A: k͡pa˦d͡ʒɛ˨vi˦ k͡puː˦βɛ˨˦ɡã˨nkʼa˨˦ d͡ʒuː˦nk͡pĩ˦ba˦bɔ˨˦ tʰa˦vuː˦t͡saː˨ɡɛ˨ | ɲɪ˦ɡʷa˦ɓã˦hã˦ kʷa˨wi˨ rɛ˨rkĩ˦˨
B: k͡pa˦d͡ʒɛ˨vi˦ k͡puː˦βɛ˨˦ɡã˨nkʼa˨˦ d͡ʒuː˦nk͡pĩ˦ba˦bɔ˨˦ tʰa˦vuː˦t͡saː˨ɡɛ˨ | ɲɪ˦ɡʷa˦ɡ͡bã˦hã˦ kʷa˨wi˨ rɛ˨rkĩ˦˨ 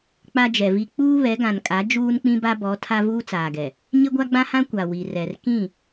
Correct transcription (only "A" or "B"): B